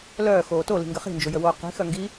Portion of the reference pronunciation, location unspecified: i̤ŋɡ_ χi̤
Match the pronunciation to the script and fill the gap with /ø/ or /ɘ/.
ɘ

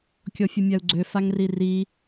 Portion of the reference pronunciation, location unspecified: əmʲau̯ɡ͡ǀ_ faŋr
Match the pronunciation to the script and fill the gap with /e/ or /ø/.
ø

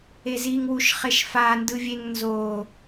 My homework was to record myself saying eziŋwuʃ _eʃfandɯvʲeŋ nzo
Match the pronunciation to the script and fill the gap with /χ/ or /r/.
χ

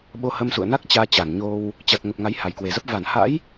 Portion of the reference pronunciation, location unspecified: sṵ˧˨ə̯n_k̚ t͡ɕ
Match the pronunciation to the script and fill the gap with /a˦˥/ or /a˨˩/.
a˦˥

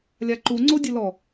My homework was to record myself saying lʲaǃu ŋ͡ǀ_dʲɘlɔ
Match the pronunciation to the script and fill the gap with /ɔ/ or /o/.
o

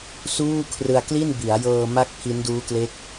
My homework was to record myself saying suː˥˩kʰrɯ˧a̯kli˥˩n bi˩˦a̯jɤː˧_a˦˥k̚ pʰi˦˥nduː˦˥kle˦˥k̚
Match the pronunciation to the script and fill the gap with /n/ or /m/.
m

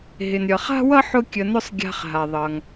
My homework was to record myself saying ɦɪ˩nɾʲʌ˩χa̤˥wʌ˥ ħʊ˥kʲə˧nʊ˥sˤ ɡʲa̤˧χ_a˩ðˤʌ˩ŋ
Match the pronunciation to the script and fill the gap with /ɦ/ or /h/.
ɦ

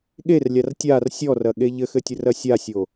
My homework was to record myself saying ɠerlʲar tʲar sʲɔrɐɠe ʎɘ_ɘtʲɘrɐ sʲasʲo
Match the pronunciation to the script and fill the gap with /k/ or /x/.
x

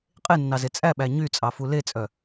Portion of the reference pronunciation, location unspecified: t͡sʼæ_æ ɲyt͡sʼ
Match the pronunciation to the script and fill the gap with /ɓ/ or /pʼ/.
ɓ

